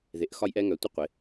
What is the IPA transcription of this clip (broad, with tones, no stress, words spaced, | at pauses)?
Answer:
ðe˨˥ʔxɒ˥jʔɛ˥ ŋœ˨˥tʷɪ˥ qʷɪ˨˥